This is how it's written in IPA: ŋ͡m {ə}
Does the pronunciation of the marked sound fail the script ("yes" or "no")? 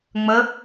no